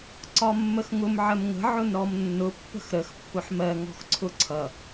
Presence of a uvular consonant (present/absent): absent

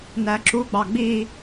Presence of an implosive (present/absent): absent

